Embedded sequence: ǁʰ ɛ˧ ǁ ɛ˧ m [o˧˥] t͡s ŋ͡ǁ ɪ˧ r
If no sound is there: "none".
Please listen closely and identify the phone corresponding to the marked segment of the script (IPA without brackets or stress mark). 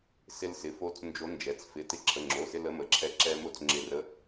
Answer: o˧˥